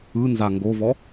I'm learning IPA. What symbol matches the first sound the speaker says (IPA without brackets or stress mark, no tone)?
ɯ